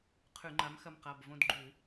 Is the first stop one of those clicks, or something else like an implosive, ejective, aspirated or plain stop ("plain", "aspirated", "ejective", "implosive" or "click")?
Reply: aspirated